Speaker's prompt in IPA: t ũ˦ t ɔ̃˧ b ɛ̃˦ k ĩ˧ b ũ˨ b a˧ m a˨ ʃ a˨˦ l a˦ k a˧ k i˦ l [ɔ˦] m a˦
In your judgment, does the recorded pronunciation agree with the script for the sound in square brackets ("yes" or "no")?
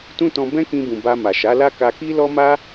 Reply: yes